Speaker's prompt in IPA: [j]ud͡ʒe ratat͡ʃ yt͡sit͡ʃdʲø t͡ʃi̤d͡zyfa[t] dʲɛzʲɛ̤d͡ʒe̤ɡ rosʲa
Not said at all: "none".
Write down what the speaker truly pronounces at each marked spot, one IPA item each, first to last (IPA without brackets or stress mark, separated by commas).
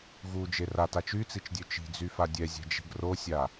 ɣ, none